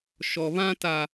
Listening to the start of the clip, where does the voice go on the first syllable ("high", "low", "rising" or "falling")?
low